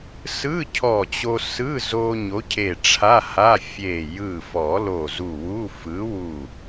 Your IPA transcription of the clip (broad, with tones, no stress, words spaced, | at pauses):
sɯ˧˥˧ cʰɔ˧˩t͡ɕo˧sɯ˧˥˧zo˧ ɲo˨˥cʰe˧˩ ʈ͡ʂʰa˧˥˧ha˧˥˧ fʲe˧˩ jɯ˧˩fɔ˨˩˦ lo˧˩zu˧˩wu˧˥˧ fɯ˨˥wu˧˩